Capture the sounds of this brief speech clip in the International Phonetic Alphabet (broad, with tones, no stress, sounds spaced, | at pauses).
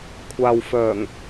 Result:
kʷʰ aː˨ w f œː˨˩ ŋ